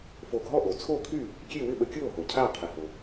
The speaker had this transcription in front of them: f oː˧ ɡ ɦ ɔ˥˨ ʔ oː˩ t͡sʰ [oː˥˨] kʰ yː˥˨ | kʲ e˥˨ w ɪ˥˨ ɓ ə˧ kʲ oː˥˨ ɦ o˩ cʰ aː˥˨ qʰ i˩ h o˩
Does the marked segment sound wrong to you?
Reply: no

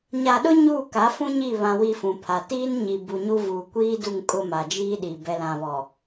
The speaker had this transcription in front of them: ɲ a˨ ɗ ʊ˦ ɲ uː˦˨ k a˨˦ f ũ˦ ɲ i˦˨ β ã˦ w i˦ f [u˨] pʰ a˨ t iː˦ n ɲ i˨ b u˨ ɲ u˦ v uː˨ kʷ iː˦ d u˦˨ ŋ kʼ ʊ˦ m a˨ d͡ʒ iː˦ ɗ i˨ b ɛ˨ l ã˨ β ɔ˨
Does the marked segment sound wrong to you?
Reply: yes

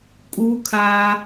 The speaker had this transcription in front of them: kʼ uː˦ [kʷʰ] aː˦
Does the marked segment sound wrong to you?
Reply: yes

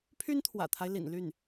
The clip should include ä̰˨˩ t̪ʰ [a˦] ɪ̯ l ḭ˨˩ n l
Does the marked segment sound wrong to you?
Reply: no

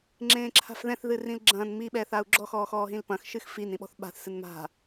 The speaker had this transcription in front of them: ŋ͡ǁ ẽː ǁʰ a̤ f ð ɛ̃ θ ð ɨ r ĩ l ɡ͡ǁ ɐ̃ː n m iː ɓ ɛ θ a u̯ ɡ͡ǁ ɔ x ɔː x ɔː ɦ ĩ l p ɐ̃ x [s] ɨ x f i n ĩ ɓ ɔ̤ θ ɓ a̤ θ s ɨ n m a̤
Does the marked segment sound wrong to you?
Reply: yes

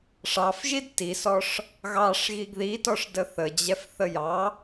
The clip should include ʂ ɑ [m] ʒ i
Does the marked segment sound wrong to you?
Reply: yes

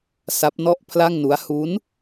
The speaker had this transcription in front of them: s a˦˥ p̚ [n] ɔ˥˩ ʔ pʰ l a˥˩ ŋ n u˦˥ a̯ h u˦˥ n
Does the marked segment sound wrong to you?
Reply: no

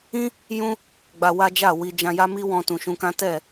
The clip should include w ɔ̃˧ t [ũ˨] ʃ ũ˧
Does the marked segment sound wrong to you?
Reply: no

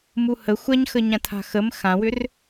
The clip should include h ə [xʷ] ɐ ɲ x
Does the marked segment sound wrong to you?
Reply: no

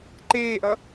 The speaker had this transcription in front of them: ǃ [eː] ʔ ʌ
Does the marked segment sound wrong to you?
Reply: no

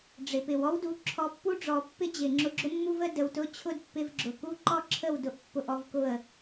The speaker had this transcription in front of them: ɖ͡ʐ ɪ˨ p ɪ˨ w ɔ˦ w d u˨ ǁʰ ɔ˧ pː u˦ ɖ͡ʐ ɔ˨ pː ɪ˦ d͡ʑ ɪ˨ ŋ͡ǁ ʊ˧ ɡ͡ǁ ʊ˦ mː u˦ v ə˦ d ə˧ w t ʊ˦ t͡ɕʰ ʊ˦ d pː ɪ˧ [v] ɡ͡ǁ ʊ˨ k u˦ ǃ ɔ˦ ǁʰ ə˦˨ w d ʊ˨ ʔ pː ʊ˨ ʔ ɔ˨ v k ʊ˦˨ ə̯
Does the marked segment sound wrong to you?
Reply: no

